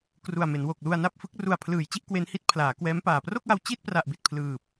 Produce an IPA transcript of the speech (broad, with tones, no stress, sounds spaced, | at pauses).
k r u˨˩ a̯ m e˩˦ n w o˨˩ k̚ l u˧ a̯ n a˥˩ p̚ f ɯ˦˥ k̚ r u˨˩ a̯ pʰ l ɯː˩˦ j t͡ɕ i˦˥ ʔ k w e˦˥ n h i˦˥ t̚ pʰ l aː˩˦ k w ɛː˦˥ m p aː˨˩ p r o˥˩ k̚ w a˧ w t͡ɕ i˥˩ t̚ p r a˨˩ ʔ b i˨˩ t̚ pʰ l ɯː˨˩ p̚